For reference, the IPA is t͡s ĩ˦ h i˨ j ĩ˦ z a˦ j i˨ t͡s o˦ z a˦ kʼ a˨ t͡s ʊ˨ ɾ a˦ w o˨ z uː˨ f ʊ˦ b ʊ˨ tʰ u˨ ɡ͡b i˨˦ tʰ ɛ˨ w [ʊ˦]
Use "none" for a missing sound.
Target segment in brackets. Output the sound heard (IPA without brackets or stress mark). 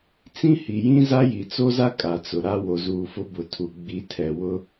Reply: ʊ˦